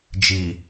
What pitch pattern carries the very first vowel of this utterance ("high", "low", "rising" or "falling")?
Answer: low